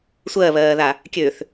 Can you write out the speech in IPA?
sʷ ɜ β ɜː ð a | kʲ ø θ

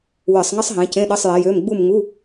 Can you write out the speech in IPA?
w ɨ˧˩˧ sˤ ŋ ɘ˥ sˤ ɦ ẽ˨˦ c ẽ˧˥˧ ɗ ɘ˧˥˧ sˤ j e˨˦ j ø˧˥˧ m ɡ͡b u˦˨ m ŋ u˧˥˧

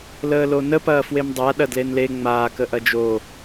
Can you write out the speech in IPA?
l əː l o n ə p ɐː f w e m dˤ a ɗ ɐ d l e n l e ŋ͡m aː k ə ʔ ɐ d͡ʒ o

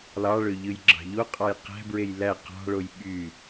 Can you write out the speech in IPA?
l ɑ ɭ ø ʎ ɯ j ɡ͡ǁ ɑ̤ ʎ o qʼ ɑ j q æ̤ b ɹ e j l æ q ɑ̤ ɭ o j ɓ y

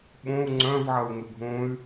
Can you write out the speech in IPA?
ɓ õ u̯ ŋ͡ǀ œ̃ v ʕ ɐ u̯ ŋ ʏ ɡʱ õ y̯

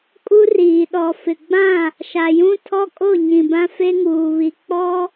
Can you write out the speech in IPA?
kʼ u˦ r iː˨ ɗ ɔ˨ f ɪ˨ ɡ͡b ã˦˨ | ʃ a˨ j ũ˦ tʰ ɔ˦ kʼ o˦˨ ɲ ĩ˨ b ã˦ f e˦ ŋ uː˨ β i˨ k͡p ɔ˦

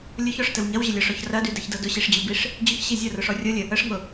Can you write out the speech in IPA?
lʲ ʊ ç ɔ ʂ t ə w ɲ ɐ w ʑ ə lʲ ɔ ʂ ɔ ç r ɐ d y d ɐ ç d ɤ d ʊ ɕ i ʂ d͡ʑ y b i ʂ | d͡ʑ ʊ ç ɕ i zʲ ɤ r ʊ ʂ ɔ rʲ ɤ lʲ ə | ə ʂ ŋ ʊ

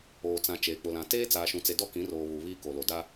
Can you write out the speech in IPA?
oː˨ t͡s ã˨ t͡ʃ eː˨ k͡p ʊ˨ l ã˨ t eː˦ t͡s aː˨ ʃ ũ˨ t͡s e˨ d ɔ˦ k ĩ˨˦ r oː˨ β u˨ β iː˦ k o˨ l o˨ d a˦

